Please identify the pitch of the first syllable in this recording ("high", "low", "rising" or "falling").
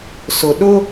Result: low